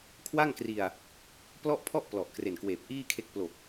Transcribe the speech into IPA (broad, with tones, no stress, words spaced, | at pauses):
kʰwa˥˩ŋkri˧a̯ | plɔ˥˩ʔpʰɔ˥˩ʔ plɔ˨˩ʔkre˨˩nkweː˨˩p̚ ʔiː˥˩kʰe˦˥k̚ plo˨˩k̚